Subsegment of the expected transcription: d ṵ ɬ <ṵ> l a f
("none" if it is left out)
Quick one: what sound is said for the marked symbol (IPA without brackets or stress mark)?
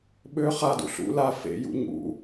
ṵ